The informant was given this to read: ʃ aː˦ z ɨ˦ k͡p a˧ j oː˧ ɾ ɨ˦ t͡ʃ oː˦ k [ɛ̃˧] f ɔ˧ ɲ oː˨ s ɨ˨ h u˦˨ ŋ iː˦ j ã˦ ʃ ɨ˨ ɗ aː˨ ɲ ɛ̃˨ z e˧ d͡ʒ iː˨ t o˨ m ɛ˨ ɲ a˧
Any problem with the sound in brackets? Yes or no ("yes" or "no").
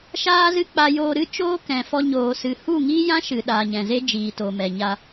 yes